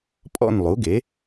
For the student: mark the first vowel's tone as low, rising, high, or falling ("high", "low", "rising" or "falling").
falling